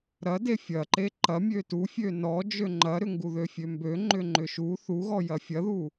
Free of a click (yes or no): no